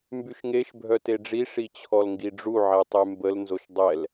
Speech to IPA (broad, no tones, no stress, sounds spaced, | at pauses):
m b y ʃ ŋ e ʃ bʱ œ t e ɖ͡ʐ i ʂ i t͡ɕʰ ɔ l ŋ ɡ i ɖ͡ʐ u ʕ ɛ tˤ y m b ə l n z o ʃ dˤ ɛ l